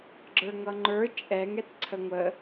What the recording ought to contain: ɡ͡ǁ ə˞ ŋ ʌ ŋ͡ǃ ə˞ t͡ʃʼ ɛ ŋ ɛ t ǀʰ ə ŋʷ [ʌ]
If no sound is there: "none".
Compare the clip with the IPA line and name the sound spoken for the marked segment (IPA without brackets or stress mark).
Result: ə